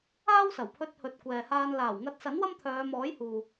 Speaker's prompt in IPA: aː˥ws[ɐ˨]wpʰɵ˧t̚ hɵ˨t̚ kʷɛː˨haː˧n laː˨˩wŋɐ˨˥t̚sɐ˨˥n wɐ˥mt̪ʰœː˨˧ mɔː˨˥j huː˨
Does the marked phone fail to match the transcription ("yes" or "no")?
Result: yes